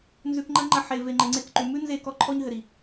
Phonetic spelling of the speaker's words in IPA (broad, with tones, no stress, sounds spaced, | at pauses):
n z ʉ˨ k ŋ͡ǃ ɐ˧ ŋ͡ǃ ɐ˧ ħ e˨ v e˨ ŋ͡ǃ ɘ˨ ŋ͡ǀ e˧ k ǃ ʉ˨ m ʉ˦ n z e˦˨ k ɔ˧ ǃʰ ɔ˧ ɲ ɦ ɘ˨ ɾ i˨